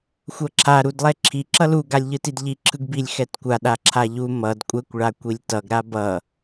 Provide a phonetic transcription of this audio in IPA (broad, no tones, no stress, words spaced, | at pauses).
xʷʌǁʰa ɾudlˠɛǁʰi ǁʌlu ɡalʲʎɯtidʎi ǁʰɯɡbilʲ xɛtkʷa ɗaǁʰaʎu mʌd kʷʼɛkʷ ɭakʷilʲtʌɡ ɾabʌ